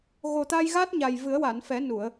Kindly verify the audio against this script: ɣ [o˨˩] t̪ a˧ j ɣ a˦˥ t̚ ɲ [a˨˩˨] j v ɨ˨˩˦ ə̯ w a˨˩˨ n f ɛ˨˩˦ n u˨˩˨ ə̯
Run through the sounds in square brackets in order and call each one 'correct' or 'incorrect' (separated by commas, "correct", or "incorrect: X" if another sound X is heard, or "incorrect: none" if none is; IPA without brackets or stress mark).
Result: correct, incorrect: a˨˩